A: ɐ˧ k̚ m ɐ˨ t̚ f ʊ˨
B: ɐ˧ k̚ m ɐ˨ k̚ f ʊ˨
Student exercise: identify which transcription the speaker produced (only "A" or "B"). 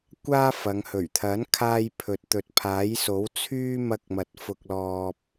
A